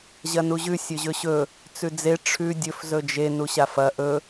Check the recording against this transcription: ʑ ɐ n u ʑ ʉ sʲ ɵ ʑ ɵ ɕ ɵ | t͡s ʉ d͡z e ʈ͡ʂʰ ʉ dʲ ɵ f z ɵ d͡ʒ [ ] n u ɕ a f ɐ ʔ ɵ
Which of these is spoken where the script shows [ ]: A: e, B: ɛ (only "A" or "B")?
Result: A